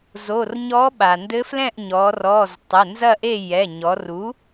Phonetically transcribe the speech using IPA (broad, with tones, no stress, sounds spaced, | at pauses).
z o˩˧˩ r ɲ ɔ˧˥ ɓ a˩ n d ɘ˧˥ f l ɛ̃˥˨ ʔ ɲ ɔ˩˧ r ɔ˩˧˩ z tˤ ɘ˩˧˩ n z ɐ˥˨ ʔ e˥˨ j ɛ˩˧˩ ɲ ɔ˩˧ r u˩˥